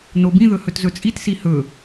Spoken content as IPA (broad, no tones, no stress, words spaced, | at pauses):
nobĩðɵ hɵtzɵt͡sʼitsi hɵ